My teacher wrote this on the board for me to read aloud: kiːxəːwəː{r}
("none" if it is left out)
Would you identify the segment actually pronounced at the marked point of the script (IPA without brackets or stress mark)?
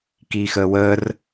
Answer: r